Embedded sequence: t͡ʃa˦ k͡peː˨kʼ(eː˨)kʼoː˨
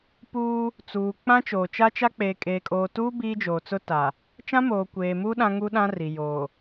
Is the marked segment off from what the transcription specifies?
no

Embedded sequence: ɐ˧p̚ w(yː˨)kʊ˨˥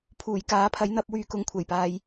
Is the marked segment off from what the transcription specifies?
yes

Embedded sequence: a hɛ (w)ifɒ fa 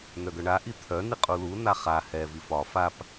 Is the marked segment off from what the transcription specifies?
yes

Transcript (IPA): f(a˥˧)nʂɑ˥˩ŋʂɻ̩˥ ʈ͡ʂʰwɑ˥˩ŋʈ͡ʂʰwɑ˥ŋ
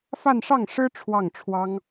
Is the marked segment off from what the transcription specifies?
no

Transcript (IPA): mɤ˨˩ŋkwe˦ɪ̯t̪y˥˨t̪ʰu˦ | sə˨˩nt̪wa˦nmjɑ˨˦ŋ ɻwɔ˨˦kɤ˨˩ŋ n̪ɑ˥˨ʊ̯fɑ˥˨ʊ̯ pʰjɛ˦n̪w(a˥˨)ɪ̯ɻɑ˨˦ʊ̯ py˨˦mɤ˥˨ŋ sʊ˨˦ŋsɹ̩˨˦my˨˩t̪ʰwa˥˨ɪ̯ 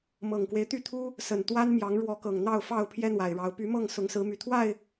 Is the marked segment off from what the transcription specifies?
yes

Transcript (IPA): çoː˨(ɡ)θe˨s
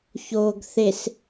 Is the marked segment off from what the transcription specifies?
no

